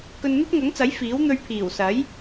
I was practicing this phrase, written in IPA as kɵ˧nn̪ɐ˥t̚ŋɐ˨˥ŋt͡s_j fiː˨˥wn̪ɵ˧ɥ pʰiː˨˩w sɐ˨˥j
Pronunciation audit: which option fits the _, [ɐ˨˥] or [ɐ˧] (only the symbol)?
ɐ˨˥